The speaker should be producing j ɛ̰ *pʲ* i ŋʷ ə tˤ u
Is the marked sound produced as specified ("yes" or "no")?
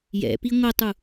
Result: no